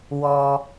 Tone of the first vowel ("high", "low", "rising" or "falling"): high